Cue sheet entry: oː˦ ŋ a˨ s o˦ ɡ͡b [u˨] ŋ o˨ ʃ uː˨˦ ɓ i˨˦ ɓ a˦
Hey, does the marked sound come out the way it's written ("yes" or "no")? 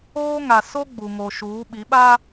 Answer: yes